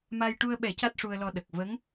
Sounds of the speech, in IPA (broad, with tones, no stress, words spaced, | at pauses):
ma˧j ʈu˧ə̯ɓɛ˨˩˦ ca˦˥t̚ʂu˧ə̯lɔ˧ɗə˨˩k̚ və˧˥ŋ